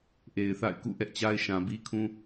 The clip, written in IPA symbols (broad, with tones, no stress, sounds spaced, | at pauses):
ʔ e˨ ɪ̯ θ a̰˦˨ ɪ̯ k ṵ˦˨ ʔ ɛ˦ ʔ t͡ɕ a˦ ɪ̯ ʃ ã˨ b i˦ kʰ ũ˦